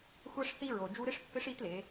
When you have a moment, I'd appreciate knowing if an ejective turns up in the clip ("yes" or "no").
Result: no